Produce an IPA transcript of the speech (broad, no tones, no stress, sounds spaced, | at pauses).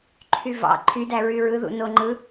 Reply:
ǃʰ y v ɑ̰ ǃʰ y d æ ɹ y ɹ ɯ ð ṵ n o ŋ͡ǃ ɯ